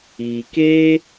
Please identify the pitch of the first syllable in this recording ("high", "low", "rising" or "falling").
low